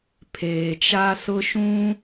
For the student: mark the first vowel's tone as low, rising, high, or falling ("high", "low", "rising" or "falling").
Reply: low